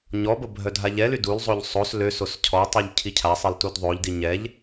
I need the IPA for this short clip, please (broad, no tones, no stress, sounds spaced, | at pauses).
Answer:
ɲ ɔ b ə bʱ œ dʱ a ʎ ɛ l y d u l zˤ o ʎ sˤ o s l ø s o s cʰ ɔ tˤ u ʎ cʰ i cʰ a sˤ i l t u d ðˤ o ʎ d i ɲ ɛ ʎ